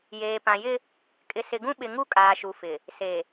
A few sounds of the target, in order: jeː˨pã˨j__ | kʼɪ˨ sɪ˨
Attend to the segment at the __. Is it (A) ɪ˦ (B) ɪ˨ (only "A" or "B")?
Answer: A